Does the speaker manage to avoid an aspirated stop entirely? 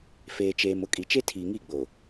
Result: no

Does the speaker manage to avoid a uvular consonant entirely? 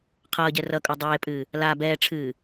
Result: no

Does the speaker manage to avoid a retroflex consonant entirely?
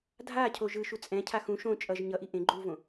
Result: yes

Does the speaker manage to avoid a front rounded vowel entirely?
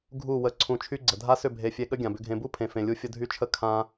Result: no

